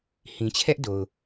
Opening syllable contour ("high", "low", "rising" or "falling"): low